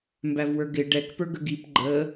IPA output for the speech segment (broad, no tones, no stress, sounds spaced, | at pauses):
m b æ v w ə˞ ɡ ɪ ɖ ɛ k p ə˞ ɡ ə ɡ i p ɡ͡ǃ ə